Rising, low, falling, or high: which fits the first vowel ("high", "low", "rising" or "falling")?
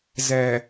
low